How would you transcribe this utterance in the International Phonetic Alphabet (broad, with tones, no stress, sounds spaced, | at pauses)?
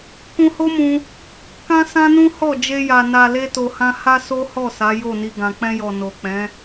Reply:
k ũ˧ h o˦ m ũ˧ | k ã˦ s ã˦ n ũ˦ h ɔ˦˨ d͡ʒ e˧ j a˨ n a˨ l e˧ t o˨ h ã˧ h a˧ s o˦ h ɔ˦˨ s a˨˦ j o˦˨ n i˧ ɡ ã˨ k͡p ɛ̃˧ j ɔ˨ n o˨ k͡p ɛ̃˨˦